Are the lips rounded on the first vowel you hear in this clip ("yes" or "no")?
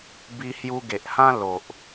no